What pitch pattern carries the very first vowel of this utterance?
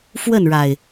falling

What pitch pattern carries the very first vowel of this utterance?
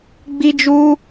high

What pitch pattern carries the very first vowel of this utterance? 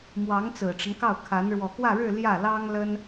rising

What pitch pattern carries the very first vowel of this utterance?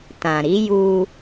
low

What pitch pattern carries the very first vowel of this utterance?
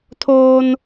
high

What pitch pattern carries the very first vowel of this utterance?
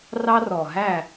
high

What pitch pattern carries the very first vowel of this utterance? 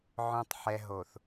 low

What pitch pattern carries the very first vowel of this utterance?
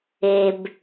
low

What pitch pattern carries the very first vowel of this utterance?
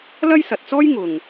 high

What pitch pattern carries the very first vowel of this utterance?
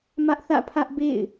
high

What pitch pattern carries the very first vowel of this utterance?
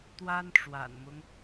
high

